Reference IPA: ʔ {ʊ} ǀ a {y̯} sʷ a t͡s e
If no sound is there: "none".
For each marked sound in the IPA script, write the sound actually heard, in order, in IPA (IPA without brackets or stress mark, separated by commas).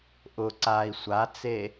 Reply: ʊ, i̯